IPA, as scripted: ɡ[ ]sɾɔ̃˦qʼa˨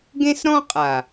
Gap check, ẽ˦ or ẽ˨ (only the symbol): ẽ˦